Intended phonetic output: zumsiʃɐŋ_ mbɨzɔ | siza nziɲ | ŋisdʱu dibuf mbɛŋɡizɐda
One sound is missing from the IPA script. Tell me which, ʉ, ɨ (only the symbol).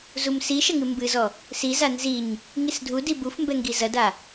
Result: ɨ